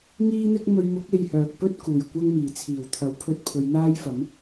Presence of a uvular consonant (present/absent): absent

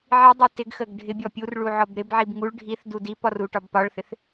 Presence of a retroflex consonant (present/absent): present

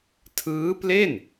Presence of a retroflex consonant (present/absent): absent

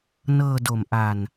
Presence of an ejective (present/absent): absent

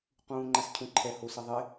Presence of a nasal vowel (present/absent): present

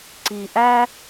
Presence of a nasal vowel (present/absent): absent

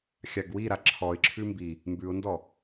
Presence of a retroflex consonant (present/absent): absent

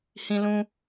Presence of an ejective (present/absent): absent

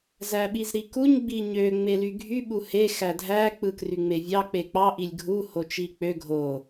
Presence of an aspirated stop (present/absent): absent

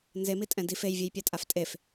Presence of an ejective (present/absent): present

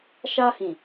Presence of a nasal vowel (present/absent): present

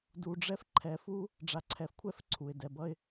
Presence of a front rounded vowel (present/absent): absent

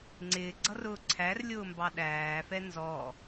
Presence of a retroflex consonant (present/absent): absent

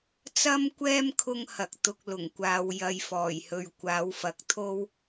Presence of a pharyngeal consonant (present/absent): absent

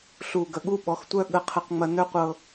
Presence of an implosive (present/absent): present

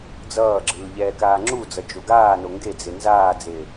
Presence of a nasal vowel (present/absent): absent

